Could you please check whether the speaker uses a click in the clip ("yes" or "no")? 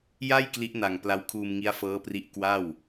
no